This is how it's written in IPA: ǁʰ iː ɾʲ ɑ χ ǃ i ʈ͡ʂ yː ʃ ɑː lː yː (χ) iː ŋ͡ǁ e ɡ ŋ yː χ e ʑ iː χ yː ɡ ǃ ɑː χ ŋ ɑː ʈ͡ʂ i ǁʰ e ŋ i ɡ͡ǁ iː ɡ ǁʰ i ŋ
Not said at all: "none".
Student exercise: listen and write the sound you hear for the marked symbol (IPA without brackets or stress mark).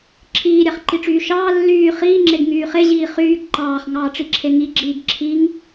χ